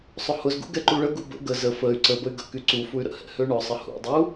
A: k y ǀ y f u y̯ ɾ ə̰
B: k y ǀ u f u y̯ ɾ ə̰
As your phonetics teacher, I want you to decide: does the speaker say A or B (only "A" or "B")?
B